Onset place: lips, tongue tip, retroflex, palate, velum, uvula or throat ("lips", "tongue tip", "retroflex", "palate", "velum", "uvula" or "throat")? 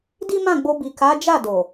tongue tip